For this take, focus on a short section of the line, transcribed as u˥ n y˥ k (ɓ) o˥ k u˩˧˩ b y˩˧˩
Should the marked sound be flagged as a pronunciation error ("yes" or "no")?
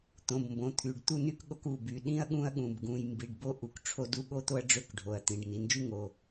yes